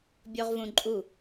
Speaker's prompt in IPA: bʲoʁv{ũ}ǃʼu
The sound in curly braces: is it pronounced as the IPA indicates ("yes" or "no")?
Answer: yes